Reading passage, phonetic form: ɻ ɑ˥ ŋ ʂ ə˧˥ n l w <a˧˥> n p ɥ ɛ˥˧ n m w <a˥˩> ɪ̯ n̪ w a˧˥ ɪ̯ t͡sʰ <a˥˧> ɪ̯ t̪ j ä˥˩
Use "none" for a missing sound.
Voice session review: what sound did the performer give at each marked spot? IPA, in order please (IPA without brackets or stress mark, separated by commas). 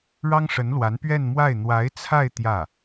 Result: a˧˥, a˥˩, a˥˧